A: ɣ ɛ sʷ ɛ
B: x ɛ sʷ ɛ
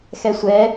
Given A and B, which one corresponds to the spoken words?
B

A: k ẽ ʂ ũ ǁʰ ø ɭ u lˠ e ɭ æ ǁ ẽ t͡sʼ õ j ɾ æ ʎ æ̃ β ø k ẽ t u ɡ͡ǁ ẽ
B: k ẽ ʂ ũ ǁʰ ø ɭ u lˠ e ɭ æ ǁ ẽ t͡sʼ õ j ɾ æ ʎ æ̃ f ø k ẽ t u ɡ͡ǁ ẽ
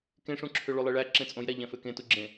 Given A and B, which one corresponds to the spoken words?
B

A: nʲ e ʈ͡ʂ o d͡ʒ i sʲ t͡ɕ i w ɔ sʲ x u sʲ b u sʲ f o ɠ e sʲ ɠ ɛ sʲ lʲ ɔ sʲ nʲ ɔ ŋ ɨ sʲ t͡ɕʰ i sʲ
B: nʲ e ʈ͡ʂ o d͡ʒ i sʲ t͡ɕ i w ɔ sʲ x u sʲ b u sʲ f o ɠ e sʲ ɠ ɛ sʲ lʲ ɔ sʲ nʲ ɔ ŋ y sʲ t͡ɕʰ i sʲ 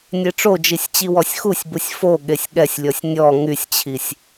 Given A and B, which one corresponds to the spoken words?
B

